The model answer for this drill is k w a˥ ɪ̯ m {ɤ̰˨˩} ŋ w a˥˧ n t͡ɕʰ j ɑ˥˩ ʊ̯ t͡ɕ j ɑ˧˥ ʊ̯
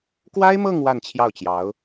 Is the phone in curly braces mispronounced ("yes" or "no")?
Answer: yes